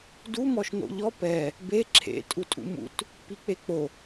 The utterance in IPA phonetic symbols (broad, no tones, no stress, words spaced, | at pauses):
du mɔʃno̰ʎɔ pɛ | be ǁʰḛ tʼutʼṵmṵt | pik͡pek͡po